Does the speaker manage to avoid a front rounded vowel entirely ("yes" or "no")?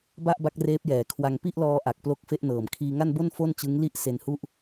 yes